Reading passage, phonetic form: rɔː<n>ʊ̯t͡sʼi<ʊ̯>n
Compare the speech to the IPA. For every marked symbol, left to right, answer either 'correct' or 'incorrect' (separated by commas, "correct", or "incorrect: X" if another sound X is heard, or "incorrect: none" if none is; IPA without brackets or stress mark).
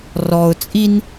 incorrect: none, incorrect: none